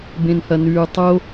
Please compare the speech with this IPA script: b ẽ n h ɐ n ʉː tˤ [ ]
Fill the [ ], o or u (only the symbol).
o